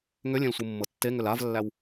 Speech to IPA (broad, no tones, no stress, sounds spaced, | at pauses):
ŋ ʏ lʲ ẽ l sʷ ɯ mː ɤ tː e ŋ ʏ l a v lː æ w